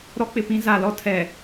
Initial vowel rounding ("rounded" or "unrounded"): rounded